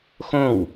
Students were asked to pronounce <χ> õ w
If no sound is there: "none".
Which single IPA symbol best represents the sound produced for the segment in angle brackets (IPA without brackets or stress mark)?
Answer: x